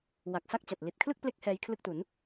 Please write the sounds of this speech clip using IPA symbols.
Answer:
w a˨˩ k̚ s a˥˩ k̚ t͡ɕ a˨˩ t̚ l i˨˩ t̚ kʰ l ɯ˥˩ k̚ p l e˦˥ k̚ h ɛː˦˥ j kʰ l ɯ˥˩ k̚ t u˩˦ n

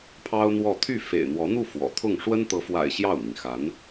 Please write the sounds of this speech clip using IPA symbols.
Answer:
pʰ ɑ˥ ʊ̯ n̪ w ɔ˥˧ t̪ʰ y˥˩ f ḛ˨˩ ɪ̯ n̪ w ɔ˧˥ n̪ u˥˩ f w ɔ̰˨˩ t̪ʰ ʊ˥˩ ŋ ʂ w ə˥ n t̪ ɤ˧˥ f w a̰˨˩ ɪ̯ ɕ j ɑ˥˩ ʊ̯ n̪ i˩ ŋ x a˧˥ n

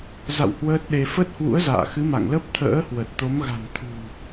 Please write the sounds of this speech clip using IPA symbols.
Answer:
z a̰˧˨ w h w əː˦˥ t̚ ɗ e˧ f ə˦˥ t̚ h w ṵ˧˥ ə̯ z a̰ː˧˨ x ɨ˨˦ m a̰˧˨ ŋ l ə˦˥ p̚ t̪ʰ ə̰ː˧˥ h w ə˨˩ t̚ t̪ o˨˦ m ɣ a̤˨˩ n t̪ʰ ṳ˨˩

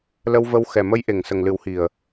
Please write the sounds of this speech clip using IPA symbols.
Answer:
l ə˧ w v ə˧ w x ɛ˨˩ m ə˧˥ j ʔ e˨˩ ŋ s ə˨˩ ŋ l ɨ˨˩˦ w h i˨˩ ə̯

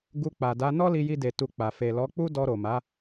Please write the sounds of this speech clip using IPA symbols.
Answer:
ɡ u˧ k͡p a˨ d a˨˦ n ɔ˦ l i˧ j i˧ d e˨ t u˧ k͡p a˨ f e˨ l ɔ˨˦ k͡p u˦ d ɔ˧ ɾ o˨ m a˨˦

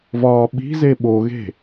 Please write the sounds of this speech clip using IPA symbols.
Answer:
v ɒː ɓ i̤ z e ɓ o ɣ e̤

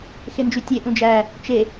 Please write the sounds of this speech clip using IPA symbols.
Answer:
x e n d͡ʒ y tʲ e ʔ ũ d͡ʒ æ | t͡ʃ e

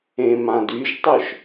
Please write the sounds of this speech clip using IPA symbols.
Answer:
ẽ m ã d y ʒ tˤ œ ʃ

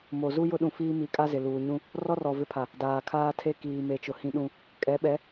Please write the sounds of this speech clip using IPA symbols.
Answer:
m o˨ z u˦ j ʊ˦ ɗ ũ˨ f iː˦ m i˨˦ kʼ a˦ z ɪ˨ l uː˨ ɲ ũ˦ | r ɔ˦ r ɔ˨ v ɪ˦ pʰ a˨ | d aː˨ kʰ aː˦ tʰ e˦ k iː˨ m e˨ t͡ʃ ʊ˨ h ĩ˦ ɗ ũ˦ | kʼ ɛ˨˦ ɓ ɛ˨˦

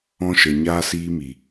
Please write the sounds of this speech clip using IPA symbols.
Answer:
ɔ̃˦ ʃ ə˨ ɲ aː˦ s iː˦ m i˨

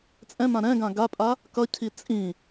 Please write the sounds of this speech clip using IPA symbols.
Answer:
t͡sʼ ɛ̃ m ã ɾ ɛ̃ ɡ ã ɡ a pʼ a | k ʌ cʰ i t͡sʼ ĩ

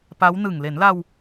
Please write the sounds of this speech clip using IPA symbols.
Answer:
p a˦˥ w n ɯ˨˩ ŋ l e˩˦ n l a˧ w

